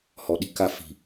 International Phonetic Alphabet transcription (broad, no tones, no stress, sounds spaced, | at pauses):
h ɔ ɗ i̤ k a f i̤